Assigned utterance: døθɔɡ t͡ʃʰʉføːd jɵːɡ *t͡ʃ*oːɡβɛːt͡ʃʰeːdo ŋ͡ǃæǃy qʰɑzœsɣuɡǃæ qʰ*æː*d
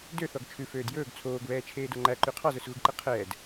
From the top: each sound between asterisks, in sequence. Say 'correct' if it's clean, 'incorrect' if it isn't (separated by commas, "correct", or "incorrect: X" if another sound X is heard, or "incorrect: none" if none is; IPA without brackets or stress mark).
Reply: incorrect: t͡sʰ, incorrect: ɛː